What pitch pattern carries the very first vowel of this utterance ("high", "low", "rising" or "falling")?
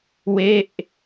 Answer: falling